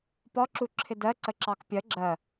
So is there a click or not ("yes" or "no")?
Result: yes